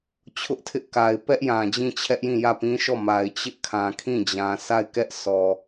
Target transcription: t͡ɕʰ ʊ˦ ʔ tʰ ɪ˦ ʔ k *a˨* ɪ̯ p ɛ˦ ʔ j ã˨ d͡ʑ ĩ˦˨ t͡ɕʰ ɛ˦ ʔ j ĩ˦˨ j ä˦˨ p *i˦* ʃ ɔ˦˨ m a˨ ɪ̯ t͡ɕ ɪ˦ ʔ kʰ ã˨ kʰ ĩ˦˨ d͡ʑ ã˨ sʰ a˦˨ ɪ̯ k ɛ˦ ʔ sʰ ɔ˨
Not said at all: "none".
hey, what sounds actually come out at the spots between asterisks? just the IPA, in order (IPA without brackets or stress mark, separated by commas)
a˨, ĩ˦